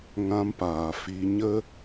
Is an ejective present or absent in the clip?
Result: absent